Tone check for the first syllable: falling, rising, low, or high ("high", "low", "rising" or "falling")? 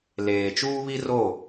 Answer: low